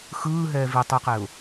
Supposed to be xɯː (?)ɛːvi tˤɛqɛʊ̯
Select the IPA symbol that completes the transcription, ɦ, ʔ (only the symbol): ɦ